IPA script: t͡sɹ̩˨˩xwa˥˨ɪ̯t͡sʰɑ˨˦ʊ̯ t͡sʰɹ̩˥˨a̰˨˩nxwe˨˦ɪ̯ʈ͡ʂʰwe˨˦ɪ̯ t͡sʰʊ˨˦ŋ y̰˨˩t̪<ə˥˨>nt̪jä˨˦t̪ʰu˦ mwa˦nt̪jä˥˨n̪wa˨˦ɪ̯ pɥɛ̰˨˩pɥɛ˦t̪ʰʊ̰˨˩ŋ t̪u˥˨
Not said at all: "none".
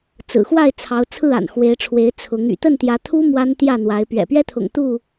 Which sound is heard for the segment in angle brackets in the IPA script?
ə˥˨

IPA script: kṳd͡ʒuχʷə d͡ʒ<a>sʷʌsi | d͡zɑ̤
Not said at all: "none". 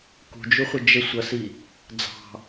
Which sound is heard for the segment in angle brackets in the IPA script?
ə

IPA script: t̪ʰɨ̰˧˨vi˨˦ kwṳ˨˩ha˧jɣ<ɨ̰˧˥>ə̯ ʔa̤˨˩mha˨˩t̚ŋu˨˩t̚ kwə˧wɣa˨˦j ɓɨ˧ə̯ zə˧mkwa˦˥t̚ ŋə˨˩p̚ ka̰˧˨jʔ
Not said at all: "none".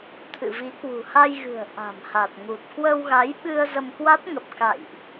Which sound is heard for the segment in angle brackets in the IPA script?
ɨ̤˨˩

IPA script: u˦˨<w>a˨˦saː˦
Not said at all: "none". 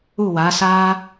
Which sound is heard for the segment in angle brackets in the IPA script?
w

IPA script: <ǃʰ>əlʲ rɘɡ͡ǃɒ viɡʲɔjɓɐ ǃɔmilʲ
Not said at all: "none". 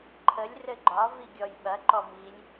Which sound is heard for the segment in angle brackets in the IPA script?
ǃʰ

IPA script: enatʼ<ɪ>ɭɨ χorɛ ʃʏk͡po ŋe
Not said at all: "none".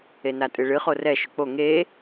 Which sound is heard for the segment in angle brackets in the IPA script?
ɨ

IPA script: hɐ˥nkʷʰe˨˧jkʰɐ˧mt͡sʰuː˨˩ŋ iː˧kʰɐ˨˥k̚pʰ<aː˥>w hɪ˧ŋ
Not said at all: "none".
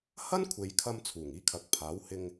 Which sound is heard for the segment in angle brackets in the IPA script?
aː˨˥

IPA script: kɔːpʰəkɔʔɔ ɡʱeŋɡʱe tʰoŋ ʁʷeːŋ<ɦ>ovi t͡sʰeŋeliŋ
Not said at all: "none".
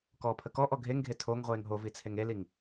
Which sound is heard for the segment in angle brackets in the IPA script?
ɦ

